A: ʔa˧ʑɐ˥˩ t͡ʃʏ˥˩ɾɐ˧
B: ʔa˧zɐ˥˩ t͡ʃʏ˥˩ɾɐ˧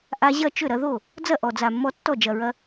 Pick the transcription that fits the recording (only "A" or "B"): A